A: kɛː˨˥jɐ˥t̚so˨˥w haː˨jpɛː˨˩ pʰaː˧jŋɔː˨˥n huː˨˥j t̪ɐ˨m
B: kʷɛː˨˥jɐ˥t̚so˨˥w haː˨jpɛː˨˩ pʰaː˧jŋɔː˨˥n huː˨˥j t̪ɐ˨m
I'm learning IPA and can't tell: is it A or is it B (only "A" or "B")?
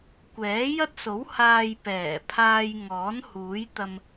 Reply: B